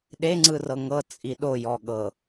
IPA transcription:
ɗ e ŋ͡ǀ ɯ r ɤ ŋ ɤ t͡sʼ i ɗ o j ɔ ɠ ɤ

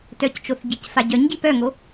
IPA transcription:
t œ c t͡ʃ o θ ɟ i c f a ɟ œ ɲ ɟ i p œ ŋ o

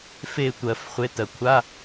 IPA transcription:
f e˦˨ tʷ ɜ˨˩˦ f χʷ e˨˥ t ɜ˩ kʷʰ a˧˥˧

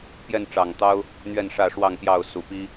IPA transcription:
p j ɛ˥˨ n ʈ͡ʂ ɑ˨˩ ŋ t̪ ɑ˦ ʊ̯ | n̪ ɥ ɛ˥˨ n ʂ ä˥˨ ʂ w ɑ˥˨ ŋ p j ɑ˥˨ ʊ̯ s u˨˩ p i˦

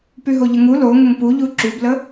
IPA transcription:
p y ɦ o ʎ ə ŋ u l o ŋ ə ŋ p u ʎ u ǁ y b l ə

